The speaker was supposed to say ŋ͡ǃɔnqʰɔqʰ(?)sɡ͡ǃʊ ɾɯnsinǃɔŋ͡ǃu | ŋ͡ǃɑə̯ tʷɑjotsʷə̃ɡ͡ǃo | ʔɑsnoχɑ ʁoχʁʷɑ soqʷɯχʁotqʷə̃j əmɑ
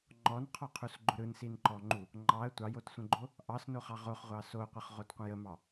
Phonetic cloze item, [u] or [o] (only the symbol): u